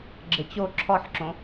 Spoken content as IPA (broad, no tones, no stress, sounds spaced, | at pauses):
ɡ͡ǁ ɘ t͡ɕ o ǁʰ ɔ ħ ǁ õ